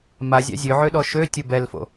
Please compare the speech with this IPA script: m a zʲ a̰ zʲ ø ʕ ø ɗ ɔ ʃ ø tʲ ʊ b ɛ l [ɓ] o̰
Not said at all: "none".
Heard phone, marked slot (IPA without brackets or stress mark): f